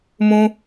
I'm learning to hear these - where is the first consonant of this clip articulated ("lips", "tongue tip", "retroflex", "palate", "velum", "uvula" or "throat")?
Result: lips